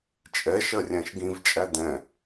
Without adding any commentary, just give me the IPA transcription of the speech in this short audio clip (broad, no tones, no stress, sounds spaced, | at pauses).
t͡ʃʼ ɛ ʃ ɜ rʲ æ̃ ʃ ɡ ĩ v t͡ʃʼ æ d ɛ̃